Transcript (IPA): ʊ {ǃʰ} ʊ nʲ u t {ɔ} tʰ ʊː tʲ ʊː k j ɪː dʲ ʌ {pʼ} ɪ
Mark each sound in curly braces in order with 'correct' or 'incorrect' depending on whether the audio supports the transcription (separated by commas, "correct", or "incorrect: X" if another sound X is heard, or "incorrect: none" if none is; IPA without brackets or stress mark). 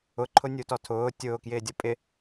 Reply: correct, correct, correct